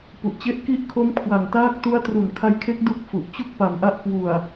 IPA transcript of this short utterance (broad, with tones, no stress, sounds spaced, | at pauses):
p u˨˩ ʔ t͡ɕ e˥˩ ʔ k i˦˥ ʔ kʰ o˦˥ m kʰ w a˨˩ ŋ t aː˦˥ k̚ t u˦˥ a̯ t r u˨˩ n kʰ a˦˥ j kʰ e˦˥ k̚ d u˥˩ k̚ f u˨˩ ʔ t͡ɕ u˥˩ k̚ p a˨˩ m ʔ a˦˥ ʔ k w u˨˩ a̯